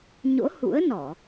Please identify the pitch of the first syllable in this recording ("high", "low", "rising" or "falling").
rising